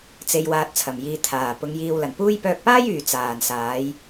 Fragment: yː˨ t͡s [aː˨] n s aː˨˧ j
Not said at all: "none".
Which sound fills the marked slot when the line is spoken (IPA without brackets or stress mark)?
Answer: aː˨